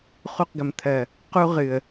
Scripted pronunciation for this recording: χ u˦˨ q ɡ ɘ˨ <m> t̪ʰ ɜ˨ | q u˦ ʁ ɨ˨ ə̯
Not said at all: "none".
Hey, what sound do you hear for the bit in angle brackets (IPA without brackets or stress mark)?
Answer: m